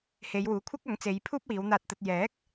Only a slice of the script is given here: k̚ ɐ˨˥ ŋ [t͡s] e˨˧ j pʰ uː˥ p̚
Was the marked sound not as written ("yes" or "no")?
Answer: no